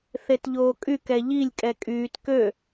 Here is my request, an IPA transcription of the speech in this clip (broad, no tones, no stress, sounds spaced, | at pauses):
θ e t ʎ oː kʼ y k ɛ ʎ i lʲ kʼ ɛ kʼ yː t k ø